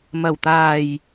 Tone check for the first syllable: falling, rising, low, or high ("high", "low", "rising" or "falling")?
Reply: low